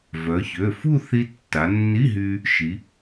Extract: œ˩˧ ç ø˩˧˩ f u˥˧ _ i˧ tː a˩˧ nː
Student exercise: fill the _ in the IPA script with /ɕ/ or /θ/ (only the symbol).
θ